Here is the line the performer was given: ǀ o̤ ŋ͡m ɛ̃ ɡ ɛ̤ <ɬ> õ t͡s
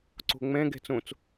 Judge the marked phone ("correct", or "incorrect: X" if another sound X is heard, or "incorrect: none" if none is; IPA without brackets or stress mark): incorrect: t͡s